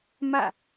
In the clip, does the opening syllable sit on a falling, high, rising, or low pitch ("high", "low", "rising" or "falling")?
falling